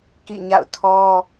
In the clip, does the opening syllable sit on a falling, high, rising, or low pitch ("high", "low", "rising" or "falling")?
falling